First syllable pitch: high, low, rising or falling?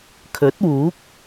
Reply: rising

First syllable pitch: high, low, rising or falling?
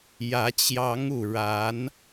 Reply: rising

